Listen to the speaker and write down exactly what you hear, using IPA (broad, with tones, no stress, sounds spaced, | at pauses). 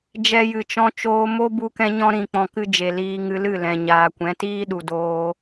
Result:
d͡ʒ ɛ˧ j ɨ˨ t͡ʃ ɔ̃˧ t͡ʃ oː˧ m o˦ b u˧ k ɛ̃˧ ɲ ɔ̃˧ ɾ ĩ˨ k͡p ɔ̃˨ k ɨ˧ d͡ʒ e˨ l iː˧ ŋ ɨ˧ l ɨ˦˨ l ɛ̃˨ ɲ aː˨ kʷ ɛ̃˨˦ t iː˦ ɗ u˨ d oː˧